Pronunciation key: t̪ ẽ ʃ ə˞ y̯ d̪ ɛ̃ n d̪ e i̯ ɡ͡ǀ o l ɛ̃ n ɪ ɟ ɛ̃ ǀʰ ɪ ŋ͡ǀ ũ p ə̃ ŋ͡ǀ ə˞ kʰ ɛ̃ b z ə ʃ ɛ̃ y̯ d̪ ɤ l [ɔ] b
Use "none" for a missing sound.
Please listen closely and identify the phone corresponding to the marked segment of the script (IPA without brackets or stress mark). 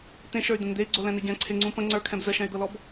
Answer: ɔ